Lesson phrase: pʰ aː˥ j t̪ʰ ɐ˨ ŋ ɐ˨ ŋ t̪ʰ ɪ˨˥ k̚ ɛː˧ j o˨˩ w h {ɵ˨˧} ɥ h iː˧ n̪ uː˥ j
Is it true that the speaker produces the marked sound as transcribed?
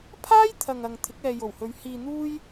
yes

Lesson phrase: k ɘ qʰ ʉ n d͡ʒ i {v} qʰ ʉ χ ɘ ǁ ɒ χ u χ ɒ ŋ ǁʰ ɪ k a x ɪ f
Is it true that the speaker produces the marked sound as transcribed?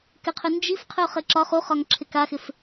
no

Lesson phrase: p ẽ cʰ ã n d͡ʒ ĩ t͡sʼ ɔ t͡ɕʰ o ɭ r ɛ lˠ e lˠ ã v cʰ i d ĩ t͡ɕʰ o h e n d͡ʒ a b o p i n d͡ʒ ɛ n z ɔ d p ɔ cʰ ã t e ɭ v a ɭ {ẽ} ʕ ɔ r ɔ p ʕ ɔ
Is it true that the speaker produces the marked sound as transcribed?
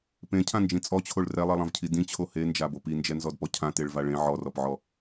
yes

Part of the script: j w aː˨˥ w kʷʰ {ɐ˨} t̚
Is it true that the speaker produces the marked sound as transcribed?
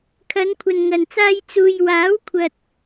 yes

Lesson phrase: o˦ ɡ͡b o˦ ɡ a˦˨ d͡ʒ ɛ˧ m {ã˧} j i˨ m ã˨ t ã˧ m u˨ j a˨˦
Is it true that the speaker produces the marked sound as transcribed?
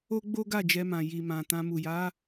no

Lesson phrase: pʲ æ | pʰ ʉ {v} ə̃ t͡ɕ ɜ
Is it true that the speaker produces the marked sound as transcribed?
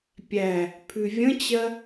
no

